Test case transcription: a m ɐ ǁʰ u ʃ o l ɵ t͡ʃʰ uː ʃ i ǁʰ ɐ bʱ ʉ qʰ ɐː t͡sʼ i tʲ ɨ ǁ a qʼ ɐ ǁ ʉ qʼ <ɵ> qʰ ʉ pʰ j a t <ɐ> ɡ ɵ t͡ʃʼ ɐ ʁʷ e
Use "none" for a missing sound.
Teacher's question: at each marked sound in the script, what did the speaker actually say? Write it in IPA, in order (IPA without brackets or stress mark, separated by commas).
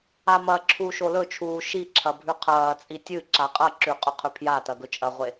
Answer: ɵ, ɐ